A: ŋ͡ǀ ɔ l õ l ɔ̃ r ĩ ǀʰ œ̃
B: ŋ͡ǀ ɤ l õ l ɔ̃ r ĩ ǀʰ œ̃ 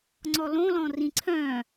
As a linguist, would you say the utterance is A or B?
A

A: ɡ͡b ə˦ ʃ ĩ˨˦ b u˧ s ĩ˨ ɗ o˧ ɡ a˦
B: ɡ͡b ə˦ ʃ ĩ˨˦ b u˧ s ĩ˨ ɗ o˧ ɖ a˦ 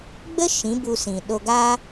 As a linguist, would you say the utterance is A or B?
A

